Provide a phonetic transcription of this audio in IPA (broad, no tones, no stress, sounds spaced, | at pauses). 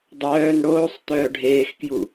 dˤ œː n ɽ oː sˤ t̪ œː ɖʱ eː x k j u